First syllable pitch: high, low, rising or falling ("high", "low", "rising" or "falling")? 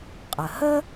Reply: low